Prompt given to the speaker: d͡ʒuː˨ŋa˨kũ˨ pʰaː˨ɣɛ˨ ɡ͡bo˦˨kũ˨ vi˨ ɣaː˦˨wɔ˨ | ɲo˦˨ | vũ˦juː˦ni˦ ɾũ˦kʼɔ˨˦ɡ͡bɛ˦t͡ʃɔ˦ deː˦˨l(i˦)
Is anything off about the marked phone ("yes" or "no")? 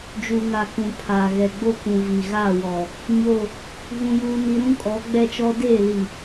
yes